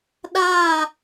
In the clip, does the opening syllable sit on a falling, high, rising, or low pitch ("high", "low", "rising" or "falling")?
falling